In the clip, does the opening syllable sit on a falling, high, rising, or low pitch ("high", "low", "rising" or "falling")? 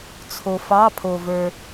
low